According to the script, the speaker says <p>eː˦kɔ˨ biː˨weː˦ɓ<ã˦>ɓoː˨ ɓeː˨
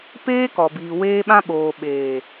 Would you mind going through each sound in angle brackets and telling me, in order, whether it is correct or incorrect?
correct, correct

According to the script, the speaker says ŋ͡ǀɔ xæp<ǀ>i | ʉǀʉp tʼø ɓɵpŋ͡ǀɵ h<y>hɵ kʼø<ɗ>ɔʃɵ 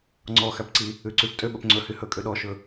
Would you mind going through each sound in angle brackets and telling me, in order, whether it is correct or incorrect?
correct, correct, correct

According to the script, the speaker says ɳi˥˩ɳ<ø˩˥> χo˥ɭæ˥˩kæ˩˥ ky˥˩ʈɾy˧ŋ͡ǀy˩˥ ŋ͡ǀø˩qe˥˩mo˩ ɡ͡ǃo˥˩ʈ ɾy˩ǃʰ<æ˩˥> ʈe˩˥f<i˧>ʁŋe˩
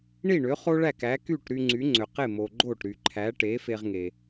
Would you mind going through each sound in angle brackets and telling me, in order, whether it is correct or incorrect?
correct, correct, incorrect: e˧

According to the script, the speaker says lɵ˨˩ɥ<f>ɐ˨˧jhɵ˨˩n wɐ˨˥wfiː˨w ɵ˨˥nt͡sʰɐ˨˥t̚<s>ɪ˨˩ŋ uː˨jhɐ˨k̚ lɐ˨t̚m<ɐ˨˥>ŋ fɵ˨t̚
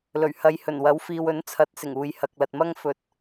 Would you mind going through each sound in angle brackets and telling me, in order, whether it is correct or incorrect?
incorrect: h, correct, incorrect: ɐ˥

